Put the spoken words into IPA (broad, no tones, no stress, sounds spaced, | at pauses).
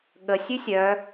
ɠ ə sʲ ʉ sʲ œ